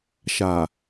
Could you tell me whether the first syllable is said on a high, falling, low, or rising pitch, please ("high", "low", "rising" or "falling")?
low